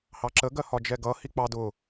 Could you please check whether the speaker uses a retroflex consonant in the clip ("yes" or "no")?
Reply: no